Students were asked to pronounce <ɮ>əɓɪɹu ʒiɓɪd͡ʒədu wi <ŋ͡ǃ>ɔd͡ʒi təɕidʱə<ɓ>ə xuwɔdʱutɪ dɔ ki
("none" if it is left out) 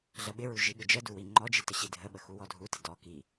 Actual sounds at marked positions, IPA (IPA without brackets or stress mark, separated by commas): ɮ, ŋ͡ǃ, ɓ